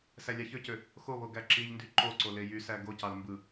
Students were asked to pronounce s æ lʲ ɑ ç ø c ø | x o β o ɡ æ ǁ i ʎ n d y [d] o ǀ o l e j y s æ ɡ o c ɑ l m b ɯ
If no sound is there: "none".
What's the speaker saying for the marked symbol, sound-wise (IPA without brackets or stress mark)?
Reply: ǃ